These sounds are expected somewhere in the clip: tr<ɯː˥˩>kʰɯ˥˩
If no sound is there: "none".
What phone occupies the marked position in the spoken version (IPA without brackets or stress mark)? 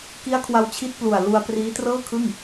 ɤː˥˩